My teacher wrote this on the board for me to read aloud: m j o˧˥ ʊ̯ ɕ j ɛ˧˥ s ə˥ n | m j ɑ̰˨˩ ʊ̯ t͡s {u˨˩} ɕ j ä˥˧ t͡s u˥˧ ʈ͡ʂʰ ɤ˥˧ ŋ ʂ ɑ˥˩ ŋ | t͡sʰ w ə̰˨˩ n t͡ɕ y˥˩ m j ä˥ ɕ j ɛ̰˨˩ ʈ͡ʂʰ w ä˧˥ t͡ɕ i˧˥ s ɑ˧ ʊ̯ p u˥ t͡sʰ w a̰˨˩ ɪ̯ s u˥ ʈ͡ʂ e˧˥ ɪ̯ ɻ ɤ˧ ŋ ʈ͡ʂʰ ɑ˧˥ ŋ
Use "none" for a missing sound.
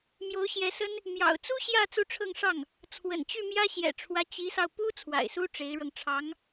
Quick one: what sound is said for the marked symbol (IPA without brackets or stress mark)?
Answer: u˥